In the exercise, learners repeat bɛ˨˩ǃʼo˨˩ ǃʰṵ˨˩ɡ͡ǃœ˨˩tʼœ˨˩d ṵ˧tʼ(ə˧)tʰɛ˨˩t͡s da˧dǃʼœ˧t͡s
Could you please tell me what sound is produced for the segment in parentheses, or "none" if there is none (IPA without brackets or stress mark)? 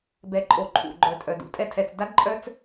ɛ˧